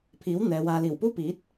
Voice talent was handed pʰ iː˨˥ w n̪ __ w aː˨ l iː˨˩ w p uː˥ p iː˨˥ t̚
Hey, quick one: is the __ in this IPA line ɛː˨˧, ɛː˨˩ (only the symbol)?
ɛː˨˧